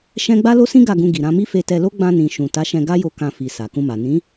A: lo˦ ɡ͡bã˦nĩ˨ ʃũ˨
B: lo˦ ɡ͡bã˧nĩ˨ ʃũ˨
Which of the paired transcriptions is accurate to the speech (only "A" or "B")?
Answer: B